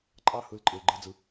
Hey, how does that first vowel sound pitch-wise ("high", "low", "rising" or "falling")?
falling